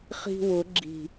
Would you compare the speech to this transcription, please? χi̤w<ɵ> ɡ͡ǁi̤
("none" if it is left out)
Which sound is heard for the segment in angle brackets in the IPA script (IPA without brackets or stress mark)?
ʊ